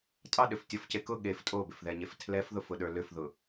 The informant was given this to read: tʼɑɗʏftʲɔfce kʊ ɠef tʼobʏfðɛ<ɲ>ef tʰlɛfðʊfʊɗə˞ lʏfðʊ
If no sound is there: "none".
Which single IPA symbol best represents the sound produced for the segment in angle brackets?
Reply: ɲ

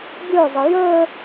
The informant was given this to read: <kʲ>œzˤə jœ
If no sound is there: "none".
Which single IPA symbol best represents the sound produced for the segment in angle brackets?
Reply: ɡʲ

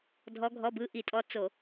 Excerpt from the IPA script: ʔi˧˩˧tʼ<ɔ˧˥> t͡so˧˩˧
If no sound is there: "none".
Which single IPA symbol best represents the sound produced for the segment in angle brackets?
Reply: ɔ˧˥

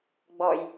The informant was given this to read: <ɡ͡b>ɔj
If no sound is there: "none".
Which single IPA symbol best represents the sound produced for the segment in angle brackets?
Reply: ɡ͡b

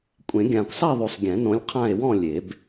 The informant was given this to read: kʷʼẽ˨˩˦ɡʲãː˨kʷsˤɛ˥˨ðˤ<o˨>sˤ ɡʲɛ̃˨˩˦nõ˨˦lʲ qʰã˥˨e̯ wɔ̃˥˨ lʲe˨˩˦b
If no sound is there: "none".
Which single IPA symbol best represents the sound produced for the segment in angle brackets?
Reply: o˨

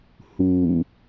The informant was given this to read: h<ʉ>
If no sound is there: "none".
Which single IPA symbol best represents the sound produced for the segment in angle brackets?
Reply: u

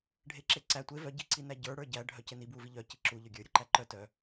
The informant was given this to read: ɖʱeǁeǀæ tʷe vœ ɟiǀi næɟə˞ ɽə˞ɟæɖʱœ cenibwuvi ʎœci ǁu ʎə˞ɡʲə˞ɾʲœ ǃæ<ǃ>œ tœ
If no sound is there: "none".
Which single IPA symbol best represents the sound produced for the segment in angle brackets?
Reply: ǃ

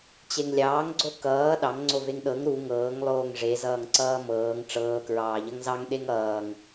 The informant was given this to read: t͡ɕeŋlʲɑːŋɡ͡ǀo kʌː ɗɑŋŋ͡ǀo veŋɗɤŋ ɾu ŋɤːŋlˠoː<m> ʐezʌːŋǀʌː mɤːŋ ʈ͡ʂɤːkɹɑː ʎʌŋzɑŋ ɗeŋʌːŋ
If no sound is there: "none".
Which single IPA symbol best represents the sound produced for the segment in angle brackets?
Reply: ŋ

